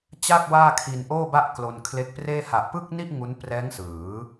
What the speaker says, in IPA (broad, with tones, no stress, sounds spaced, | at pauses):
t͡ɕ a˥˩ k̚ w aː˥˩ kʰ i˧ n ʔ oː˥˩ b a˥˩ ʔ k l o˧ n kʰ l e˦˥ k̚ p r eː˥˩ h a˨˩ ʔ p ɯ˥˩ k̚ n i˥˩ ʔ ŋ u˦˥ n p r ɛː˦˥ ŋ s ɯː˩˦